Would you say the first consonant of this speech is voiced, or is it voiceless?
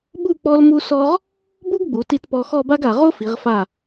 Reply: voiced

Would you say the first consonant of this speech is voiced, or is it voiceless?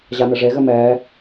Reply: voiced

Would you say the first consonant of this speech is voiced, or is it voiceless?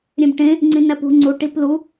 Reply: voiced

